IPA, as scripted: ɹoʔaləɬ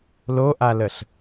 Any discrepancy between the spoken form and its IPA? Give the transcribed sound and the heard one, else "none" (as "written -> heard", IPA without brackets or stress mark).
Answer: ɹ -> l